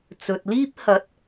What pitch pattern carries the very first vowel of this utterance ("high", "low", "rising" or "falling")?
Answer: low